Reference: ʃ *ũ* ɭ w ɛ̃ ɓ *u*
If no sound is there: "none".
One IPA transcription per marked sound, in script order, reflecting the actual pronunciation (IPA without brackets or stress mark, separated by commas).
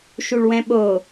u, o